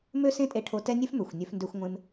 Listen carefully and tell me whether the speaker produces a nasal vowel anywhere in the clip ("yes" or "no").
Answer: yes